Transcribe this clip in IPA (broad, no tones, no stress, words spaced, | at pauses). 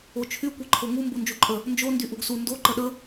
ot͡ʃʰy kʷeǃʰoŋu mbund͡ʒuǃʼə | nd͡ʒo ndyʔuɡsu ndo ǃəɗə